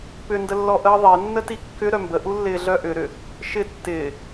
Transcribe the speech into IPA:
p ʏ n d ə lː ɔ ʔ əː ðˤ e nː ə t i kː ʏ ɾ œ m b ə ʔ u lː ɪː ɮ œ ʔ ʏ ɾ ʏ | ʃ ɪ tː ɪː

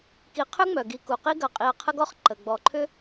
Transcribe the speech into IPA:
k i˨ qʰ ʏ˥ ŋ͡m œ˩ ɡ i˨ k u˩ q i˥ ɡ ɐ˨ qʼ i˨ ɐ̯ qʰ ə˦ ɡ ɔ˥ χ ǃ ə˩ ɡ͡b ɔ˨ ǃʰ ʏ˥

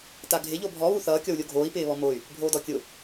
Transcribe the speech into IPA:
t a ɡʱ ɪ ʎ o bʱ ɔ β u θ ʌː kʲ ɔ w lʲ o ɡʱ oː i̯ p ɪː β ɔ m o y̯ | bʱ oː d ɔ kʲ ʊ

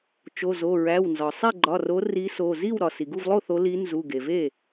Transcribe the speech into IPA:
t͡ʃ o˩˧˩ z o˩˧˩ ɹ æ˩˧˩ w n z ɒ˩ sˤ e˥˩ ɡ͡ǃ ɒ˩˧˩ r o˨˦ r i˨˦ s o˩˧˩ z i˥˩ w ɾ ɒ˩ s i˩ ɡ u˥˩ v lˠ o˥˩ θ o˨˦ l i˨˦ n z u˩˧˩ ɡ e˩ v e˥˩

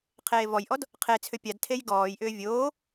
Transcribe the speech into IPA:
qʰ eː v ɔ j ʔ ɔ d | qʰ e t͡sʰ ʏ pʲ a d tʰ e j ɡ ɔː j ʔ ʏː vʲ oː

